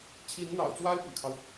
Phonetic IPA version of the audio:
t͡ɕʰ i˧˥ n n̪ ɑ̰˨˩ ʊ̯ t͡s w a˥ ɪ̯ p y̰˨˩ kʰ ɑ˦ ʊ̯

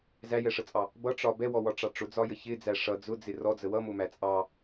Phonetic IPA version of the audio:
z æ j ɛ ʂ ə t͡sʼ ɑ | b ʌ ʈ͡ʂ ɒ b ɛ w ɔ w ɒ ʈ͡ʂ ɑ ʈ͡ʂ ʊ d͡z ɒ j ə ç ɪ d͡z æ ʂ ʌ d͡z ʊ d͡z ɪ r ɔ d͡z ə w ʌ m ʊ m æ t͡sʼ ɑ

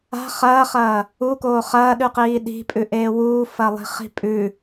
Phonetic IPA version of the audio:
a̤ χ ɐː χ ɐː | u k oː χ ɐː ɗ ʉ q iː ɗ i̤ pʼ ʉ ʔ eː w uː f ɐ lˠ i̤ χ i̤ pʼ ʉ

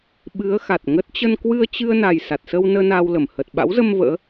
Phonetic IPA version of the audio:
ɓ ɨ˨˦ ə̯ x a˨˩ t̚ ŋ ə˦˥ t̚ t͡ɕ ə˧ n k w ɨ˧ ə̯ t͡ɕ ɨ˧ ə̯ n a˨˩ j s a˨˩ t̚ s ə˧ w n əː˧ n aː˧ w l ə˧˩ m h ə˨˩ t̚ ɓ a̰˧˥ w z ə˧ m v ə̰ː˧˥

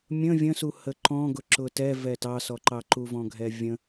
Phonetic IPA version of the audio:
mʲ ə̃ vʲ ə̃ s u h ə ǃ ɔ̃ ɡ ʊ ǁ ʊ t ɛ v ɛ t ɑ s ɔ ǃ ɑ ǃ u v ɔ̃ ɡʱ ɛ vʲ ə̃

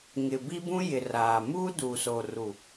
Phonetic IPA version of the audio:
ŋ ɪ˨ b i˦ b ũ˦ j ɪ˨ r aː˨ m uː˦ d uː˨ s oː˨ r u˨

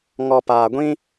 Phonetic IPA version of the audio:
ŋ ɔ˨ p aː˨ ɡʷ ĩ˦

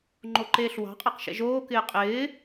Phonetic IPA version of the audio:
ŋ͡ǃ o ǃ eː ɬ w ɑ̤ qʼ ɛ q ʃ ɛ̰ ʒ oː k ɪː qʼ ɪː

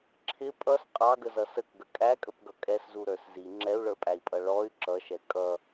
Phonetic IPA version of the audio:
ǁʰ ɪ pʼ ʌ s qʼ ɑ ɡ ə z ʌ s ə k ɡ ə kʼ æ kʼ ə p ɡ ʌ kʼ ɛ s z u ɾ ə˞ s z i ŋ͡ǁ ɛ u̯ ɭ ə˞ pʼ æ i̯ pʼ ʌ ɭ ɔ y̯ ǁ ʌ ʃ ɛ kʼ ʌ

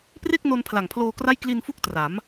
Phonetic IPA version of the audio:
p r e˥˩ k̚ n o˧ n pʰ l a˨˩ ŋ pʰ l oː˧ k r a˥˩ j k l i˧ n f u˦˥ k̚ t r a˩˦ m

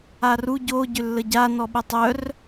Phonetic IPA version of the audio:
a r u ɟ o ɟ ʏ lː ə ɟ a n ɔ ɓ ə tˤ œ r

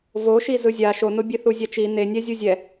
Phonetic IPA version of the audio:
v o ʃ i z ɯ zʲ a ʃ o n o bʲ e θ u zʲ a t͡ʃ i n̪ e nʲ ɛ zʲ u zʲ ɛ

